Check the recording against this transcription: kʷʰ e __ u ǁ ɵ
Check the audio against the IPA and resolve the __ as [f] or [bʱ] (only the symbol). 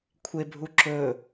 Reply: bʱ